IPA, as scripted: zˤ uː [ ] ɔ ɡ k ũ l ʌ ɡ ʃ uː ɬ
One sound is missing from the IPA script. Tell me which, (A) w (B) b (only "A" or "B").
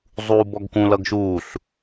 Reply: B